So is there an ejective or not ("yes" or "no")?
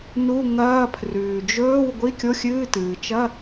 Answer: no